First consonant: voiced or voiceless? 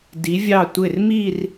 voiced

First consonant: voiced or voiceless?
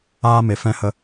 voiced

